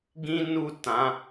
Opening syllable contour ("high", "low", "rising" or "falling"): high